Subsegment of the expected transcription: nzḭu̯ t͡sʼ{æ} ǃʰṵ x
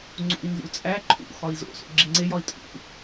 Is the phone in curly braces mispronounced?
no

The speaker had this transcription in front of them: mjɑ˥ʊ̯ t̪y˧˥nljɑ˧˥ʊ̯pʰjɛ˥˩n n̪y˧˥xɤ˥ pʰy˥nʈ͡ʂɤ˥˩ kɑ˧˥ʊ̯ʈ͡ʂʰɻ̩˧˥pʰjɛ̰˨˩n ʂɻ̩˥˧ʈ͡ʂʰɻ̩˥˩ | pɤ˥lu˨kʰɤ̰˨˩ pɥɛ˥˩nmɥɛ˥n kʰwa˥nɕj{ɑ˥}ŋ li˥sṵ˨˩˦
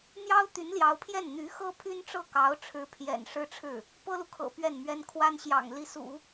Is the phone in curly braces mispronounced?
yes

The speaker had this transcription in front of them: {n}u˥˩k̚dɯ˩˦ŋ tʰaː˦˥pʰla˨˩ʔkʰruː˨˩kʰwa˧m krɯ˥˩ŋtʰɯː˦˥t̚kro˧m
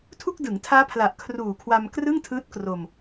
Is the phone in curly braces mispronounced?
yes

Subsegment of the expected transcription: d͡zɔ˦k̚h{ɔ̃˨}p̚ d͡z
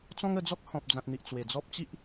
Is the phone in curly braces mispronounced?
no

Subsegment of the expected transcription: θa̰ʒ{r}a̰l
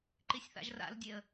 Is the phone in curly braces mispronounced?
no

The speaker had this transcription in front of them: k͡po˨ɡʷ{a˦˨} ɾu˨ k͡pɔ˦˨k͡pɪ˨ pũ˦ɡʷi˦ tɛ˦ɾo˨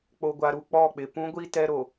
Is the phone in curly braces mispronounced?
yes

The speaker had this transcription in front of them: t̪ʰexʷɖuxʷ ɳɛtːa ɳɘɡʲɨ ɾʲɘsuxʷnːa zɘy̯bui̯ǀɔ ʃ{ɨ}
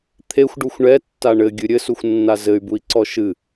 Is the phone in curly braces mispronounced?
no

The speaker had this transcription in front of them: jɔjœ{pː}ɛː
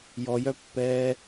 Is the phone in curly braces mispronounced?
no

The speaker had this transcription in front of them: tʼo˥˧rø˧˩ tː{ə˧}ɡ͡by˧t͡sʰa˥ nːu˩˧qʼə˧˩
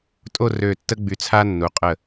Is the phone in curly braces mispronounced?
yes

